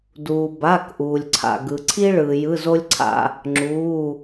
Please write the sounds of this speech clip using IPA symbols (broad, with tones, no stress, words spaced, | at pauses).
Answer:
duː˩ ba˩˧˩kʔuː˩lʲǀʰa̰˩ ɡɯ˩ǀʰi˧ɭɯː˩ jɯ˩˧˩zo˧lʲǀʰa̰˩ | ŋ͡ǁuː˩˧˩